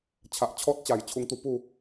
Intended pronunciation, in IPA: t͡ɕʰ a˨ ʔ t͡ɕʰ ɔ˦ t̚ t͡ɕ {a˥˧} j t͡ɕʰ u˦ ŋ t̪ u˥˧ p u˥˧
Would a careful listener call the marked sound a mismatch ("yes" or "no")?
yes